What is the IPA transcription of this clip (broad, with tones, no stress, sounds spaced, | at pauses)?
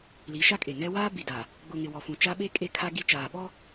l i˨˦ ʃ a˦ kʼ e˨ ŋ ɛ˦ w aː˦ b i˨ d a˨ | ɡ͡b ʊ˨ ŋ ɪ˨ w ɔ˨ f ũ˨ t͡ʃ a˦ ɓ e˦ kʼ e˦ kʰ a˦ ɡ i˦ t͡ʃ aː˨ ɓ ɔ˦